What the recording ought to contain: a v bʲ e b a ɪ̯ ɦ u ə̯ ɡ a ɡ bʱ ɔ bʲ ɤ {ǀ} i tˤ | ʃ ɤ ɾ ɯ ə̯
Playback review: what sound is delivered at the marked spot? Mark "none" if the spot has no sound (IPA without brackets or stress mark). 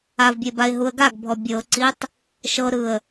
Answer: ǀ